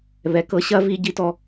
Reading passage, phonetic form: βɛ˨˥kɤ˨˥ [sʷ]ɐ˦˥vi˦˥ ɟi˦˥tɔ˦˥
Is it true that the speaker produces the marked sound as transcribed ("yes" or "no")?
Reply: no